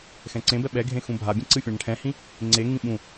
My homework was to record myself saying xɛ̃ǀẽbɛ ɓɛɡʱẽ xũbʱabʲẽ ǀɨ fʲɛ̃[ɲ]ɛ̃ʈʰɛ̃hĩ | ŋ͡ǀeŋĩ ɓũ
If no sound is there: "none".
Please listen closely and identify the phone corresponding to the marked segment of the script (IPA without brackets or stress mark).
ɳ